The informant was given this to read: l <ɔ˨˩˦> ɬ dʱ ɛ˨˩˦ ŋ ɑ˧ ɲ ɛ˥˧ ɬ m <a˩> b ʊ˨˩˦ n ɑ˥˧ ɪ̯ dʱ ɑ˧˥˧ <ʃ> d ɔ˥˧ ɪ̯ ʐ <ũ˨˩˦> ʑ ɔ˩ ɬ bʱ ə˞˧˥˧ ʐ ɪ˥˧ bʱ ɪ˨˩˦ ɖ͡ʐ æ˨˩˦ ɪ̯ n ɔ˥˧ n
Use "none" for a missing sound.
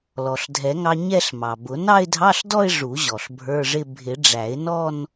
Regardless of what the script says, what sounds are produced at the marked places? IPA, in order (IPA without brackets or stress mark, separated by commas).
ɔ˩, ɑ˩, ɬ, u˨˩˦